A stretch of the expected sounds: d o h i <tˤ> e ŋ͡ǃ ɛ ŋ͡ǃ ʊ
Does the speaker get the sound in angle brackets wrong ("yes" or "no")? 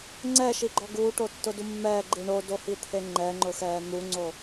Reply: yes